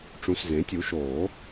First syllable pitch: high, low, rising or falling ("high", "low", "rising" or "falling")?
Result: rising